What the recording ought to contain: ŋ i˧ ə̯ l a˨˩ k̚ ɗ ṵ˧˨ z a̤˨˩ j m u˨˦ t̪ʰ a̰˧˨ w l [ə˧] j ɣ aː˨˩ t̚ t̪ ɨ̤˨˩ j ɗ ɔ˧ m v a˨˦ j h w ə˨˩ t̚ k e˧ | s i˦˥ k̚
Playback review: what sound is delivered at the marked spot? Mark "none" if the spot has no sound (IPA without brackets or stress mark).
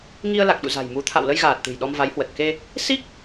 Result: ə˧